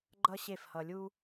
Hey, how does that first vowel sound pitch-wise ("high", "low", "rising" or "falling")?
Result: high